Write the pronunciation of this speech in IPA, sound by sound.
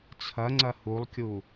t͡sʰ ɐ ŋ͡ǀ ɐ h u lˠ kʲ u

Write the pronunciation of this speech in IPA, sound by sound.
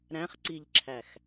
ɾ æ̃ χ ǀ i ʎ ǁʰ æ x

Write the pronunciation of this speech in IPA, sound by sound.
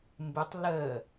m b ɨ tˤ l əː

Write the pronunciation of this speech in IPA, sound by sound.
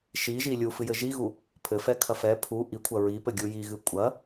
ʃ i ʒ i lʲ u f ɨ j ɘ ʒ i ɣ u | pʰ ɘ f ɛ kʰ ɐ f ɛ pʰ u ʔ i kʷʰ ɐ ɹ i p ɘ ɡʲ u j i ɣ ɨ kʷʼ ɐ

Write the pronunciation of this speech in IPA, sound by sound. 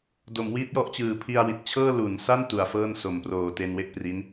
d o˩˦ m w iː˦˥ t̚ j ɔ˦˥ ʔ t͡ɕ ɯː˨˩ pʰ i˧ a̯ w i˨˩ t̚ t͡ɕʰ ɤː˥˩ l u˩˦ n s a˥˩ n t u˩˦ a̯ f ɤː˥˩ n s o˨˩ m p r oː˨˩ t e˧ n w e˥˩ ʔ p r i˦˥ n

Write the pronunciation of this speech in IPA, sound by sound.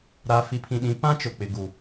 ɾ a˨ f i˨ pʰ ĩ˨ ɗ ĩ˨˦ p ã˦ t͡ʃ ʊ˨ k͡p ɪ˨ ɡ u˨

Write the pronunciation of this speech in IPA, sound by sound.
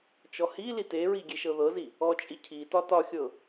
t͡ʃ ɔ h i l i t e ɹ i ɡʲ e ʃ ɤ ð ɤ z i | ɔ t͡ʃʼ i cʰ i t ɒ t ɒ xʲ ɤ

